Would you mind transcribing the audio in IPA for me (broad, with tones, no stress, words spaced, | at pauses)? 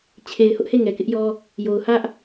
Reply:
t͡ɕʰe˨ɪ̯ hʊ˦ʔhe˦˨ ŋɛ˨kɪ˦ʔjɔ˦ | jo˨ʊ̯ hä˦ʔ